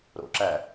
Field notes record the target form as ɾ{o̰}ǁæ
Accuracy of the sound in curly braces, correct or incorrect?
correct